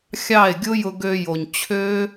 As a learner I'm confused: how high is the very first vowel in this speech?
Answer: low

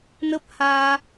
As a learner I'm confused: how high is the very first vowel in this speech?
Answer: mid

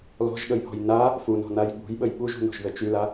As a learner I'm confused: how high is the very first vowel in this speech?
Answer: mid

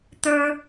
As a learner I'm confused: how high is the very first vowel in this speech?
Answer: mid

